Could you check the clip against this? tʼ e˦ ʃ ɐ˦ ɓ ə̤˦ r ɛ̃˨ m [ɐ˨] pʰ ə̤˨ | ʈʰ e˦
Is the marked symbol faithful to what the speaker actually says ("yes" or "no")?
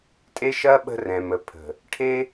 no